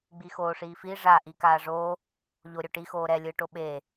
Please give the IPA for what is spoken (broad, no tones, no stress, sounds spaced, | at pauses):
ɡ͡b i x oː ʂ iː f i ʐ a ʔ i k aː ʐ oː | ʎ o ɾʲ o ʈ i x oː ɾ ɛ lʲ ɯː ʈ o ɓ eː